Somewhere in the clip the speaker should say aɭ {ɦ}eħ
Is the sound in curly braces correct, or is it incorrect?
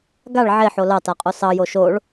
incorrect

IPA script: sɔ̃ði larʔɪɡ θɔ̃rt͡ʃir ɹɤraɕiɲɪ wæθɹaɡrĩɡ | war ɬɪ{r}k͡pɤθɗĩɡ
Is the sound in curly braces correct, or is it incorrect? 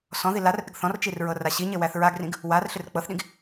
correct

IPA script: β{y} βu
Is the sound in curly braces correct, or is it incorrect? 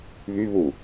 correct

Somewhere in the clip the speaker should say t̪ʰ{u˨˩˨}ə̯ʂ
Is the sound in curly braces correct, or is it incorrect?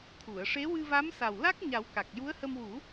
correct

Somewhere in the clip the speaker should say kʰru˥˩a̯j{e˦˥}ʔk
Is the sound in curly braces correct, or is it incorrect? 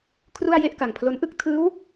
incorrect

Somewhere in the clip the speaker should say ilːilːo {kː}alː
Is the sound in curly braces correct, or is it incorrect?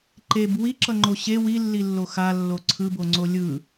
incorrect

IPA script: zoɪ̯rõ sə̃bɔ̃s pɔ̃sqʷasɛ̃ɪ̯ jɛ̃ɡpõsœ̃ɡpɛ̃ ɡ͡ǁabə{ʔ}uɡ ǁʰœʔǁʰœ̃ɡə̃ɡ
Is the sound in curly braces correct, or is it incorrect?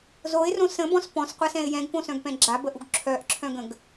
correct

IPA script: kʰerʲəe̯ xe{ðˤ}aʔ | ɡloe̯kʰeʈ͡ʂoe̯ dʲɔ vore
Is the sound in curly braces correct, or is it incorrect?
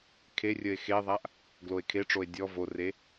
correct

